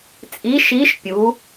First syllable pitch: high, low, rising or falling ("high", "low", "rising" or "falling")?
rising